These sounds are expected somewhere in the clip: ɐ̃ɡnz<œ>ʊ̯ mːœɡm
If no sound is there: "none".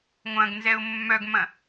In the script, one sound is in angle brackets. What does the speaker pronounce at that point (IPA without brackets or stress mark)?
ɛ